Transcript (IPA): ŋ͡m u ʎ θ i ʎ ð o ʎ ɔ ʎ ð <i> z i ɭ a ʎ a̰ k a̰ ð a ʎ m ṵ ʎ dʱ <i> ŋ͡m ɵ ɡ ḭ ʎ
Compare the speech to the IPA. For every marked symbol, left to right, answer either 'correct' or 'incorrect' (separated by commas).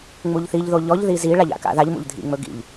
correct, incorrect